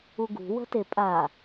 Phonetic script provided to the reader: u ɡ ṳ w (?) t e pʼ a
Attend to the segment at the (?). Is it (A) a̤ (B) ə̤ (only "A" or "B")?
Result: B